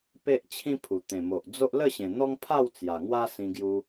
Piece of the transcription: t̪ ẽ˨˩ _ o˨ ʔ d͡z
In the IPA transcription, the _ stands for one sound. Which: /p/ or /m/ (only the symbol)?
m